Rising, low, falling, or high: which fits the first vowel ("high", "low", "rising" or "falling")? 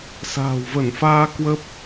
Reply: low